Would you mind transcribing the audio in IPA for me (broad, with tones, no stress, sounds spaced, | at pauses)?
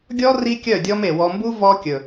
ɡʲ ɔ˦ r i˦ kʲ œ˦˨ dʲ ɔ˦ m e˨ w ɔ˨ m b u˦ v ɔ˦ kʲ ɵ˨